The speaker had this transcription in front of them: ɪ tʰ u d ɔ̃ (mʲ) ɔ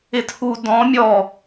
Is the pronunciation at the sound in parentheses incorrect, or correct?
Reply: correct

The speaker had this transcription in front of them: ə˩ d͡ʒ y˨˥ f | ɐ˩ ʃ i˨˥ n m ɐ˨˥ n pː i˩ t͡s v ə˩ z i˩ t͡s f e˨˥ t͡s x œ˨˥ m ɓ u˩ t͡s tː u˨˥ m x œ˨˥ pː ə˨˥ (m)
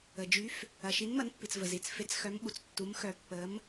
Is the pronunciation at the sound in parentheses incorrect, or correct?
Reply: correct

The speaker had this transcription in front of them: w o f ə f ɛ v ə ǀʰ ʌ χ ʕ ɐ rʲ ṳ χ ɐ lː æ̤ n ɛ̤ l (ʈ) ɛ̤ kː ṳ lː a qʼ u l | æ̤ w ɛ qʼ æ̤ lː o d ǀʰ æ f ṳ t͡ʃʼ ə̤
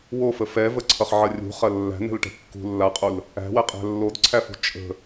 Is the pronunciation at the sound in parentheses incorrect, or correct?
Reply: correct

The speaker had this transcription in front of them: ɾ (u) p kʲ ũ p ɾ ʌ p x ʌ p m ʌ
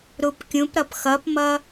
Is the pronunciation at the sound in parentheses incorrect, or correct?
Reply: correct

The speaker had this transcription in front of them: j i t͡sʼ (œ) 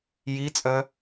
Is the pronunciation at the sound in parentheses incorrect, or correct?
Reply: correct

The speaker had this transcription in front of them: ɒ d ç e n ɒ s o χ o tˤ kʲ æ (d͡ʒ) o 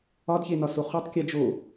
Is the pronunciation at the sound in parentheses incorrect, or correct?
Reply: correct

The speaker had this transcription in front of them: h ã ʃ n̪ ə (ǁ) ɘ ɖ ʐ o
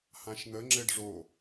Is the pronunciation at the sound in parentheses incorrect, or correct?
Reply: incorrect: ŋ͡ǁ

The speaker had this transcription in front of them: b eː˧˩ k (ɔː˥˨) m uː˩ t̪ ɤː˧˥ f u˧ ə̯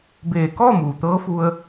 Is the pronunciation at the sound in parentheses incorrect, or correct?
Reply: correct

